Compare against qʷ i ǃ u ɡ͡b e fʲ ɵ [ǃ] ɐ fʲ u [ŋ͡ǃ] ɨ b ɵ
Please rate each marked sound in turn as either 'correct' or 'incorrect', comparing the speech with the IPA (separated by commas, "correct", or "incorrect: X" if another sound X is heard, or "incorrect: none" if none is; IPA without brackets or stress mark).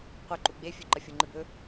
correct, correct